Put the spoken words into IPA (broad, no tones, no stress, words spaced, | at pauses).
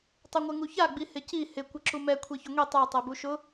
tˤuŋʷɛŋuça ɡ͡bihɪci hɪ kʷɪǁumɛ kʷʰeçʊŋʷi tˤa tˤɛbuʃʊ